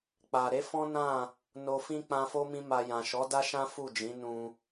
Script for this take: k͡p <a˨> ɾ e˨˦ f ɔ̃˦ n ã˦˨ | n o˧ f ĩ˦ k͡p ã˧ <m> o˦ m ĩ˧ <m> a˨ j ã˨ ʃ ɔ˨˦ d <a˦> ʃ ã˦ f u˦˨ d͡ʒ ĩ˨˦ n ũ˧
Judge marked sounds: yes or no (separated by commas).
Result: yes, no, yes, yes